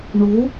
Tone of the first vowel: rising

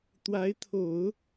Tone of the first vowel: rising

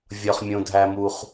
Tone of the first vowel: low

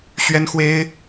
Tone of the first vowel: high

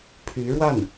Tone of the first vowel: rising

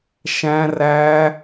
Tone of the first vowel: high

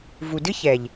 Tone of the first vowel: low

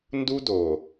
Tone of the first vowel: high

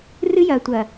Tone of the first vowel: high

